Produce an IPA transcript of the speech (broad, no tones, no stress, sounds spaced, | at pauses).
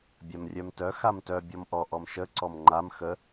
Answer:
bʲ a m rʲ œ m t œ x a m t œ bʲ ɔ m ʔ ɔ ʔ ɔ m ʃ ə ǀ ɔ m ŋ͡ǃ a m x ə